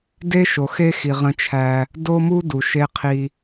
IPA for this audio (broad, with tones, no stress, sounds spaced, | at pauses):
d e˦ ʃ o˨ x e˦ x i˨ ʁ ə̃˦ t͡ʃʰ æ˦ | d o˦ m u˦ d u˨ ʃ e˦ qʰ i˦